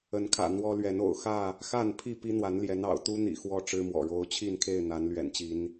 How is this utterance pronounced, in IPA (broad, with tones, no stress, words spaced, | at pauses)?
ə˨˦nkʰä̰˨˩ n̪wɔ˦lɥɛ˨˦n o̰˨˩ʊ̯xä˥˨ | xa˥˨npʰi˥˨ pi˦n̪wa˨˦nljɛ˨˦n ɑ̰˨˩ʊ̯t̪u˦n̪ḭ˨˩ xwɔ˥˨ʈ͡ʂɻ̩˦mwɔ̰˨˩ ɻo˨˦ʊ̯t͡ɕʰi˥˨nkʰe˥˨ɪ̯ n̪a˨˦nlɥɛ̰˨˩nt͡ɕi˨˦n